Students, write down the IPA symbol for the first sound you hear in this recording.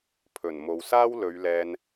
pʰ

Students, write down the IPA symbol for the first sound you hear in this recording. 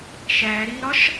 ʃ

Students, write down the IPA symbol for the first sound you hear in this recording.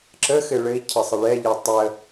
ǁ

